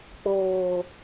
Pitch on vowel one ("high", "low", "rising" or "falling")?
low